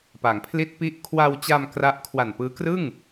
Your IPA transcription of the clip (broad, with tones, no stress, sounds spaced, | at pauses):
p a˩˦ ŋ pʰ l i˦˥ t̚ p i˦˥ ʔ kʰ w a˧ w t͡ɕ a˧ m k r a˦˥ ʔ kʰ w a˨˩ n p ɯː˦˥ k r ɯ˥˩ ŋ